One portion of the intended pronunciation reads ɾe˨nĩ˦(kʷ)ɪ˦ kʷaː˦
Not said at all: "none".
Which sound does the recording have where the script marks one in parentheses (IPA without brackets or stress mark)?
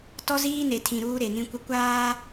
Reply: kʷ